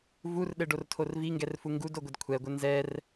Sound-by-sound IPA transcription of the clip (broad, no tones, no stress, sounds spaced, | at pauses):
v u r ɗ ɘ ɖ o r tʰ o r v i ŋ ɡ ɛ r f u ŋ ɡ u d o ɡʷ ɘ d kʷʰ ɛ ɡʷ ɘ n z ɛ r